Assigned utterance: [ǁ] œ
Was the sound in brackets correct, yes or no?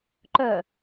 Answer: no